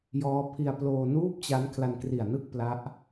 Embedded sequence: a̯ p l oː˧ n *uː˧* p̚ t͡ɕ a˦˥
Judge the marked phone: incorrect: uː˥˩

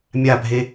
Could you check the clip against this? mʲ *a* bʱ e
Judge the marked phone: correct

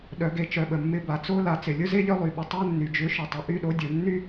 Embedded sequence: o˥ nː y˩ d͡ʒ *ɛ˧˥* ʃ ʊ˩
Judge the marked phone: incorrect: ʏ˧˥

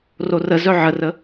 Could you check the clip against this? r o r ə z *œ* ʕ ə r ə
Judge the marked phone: correct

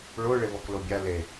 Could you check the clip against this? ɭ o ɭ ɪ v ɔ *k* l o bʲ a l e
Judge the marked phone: correct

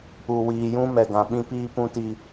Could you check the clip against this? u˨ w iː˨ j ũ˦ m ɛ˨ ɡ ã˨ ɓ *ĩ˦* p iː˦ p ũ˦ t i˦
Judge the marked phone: correct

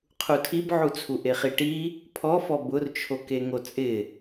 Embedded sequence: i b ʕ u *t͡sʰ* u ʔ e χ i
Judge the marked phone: correct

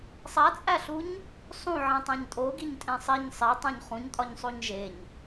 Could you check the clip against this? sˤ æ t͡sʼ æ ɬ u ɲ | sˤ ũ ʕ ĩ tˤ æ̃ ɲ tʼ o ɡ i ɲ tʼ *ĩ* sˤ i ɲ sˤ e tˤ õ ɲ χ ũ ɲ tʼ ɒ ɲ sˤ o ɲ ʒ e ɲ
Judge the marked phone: incorrect: ẽ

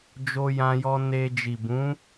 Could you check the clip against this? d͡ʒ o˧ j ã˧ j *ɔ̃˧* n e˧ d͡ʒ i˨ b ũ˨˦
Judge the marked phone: incorrect: ɔ˧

